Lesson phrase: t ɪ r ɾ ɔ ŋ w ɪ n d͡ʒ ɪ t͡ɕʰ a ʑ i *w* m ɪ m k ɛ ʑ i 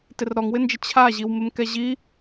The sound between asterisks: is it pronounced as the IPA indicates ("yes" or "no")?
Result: yes